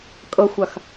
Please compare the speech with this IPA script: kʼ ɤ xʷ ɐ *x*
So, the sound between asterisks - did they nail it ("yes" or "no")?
yes